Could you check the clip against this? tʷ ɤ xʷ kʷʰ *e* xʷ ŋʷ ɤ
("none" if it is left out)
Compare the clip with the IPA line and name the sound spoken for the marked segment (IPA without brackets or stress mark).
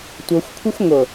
e